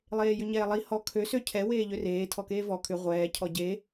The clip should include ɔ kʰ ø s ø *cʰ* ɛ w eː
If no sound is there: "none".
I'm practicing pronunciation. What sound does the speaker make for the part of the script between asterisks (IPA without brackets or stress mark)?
cʰ